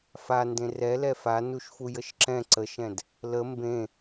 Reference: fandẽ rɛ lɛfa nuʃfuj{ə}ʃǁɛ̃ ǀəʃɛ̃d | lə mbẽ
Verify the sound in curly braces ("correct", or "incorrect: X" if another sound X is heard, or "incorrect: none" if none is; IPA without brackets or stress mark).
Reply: correct